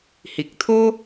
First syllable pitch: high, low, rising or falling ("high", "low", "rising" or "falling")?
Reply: low